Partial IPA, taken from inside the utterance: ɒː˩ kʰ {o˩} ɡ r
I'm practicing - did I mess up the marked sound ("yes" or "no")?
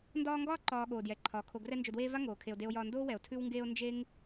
yes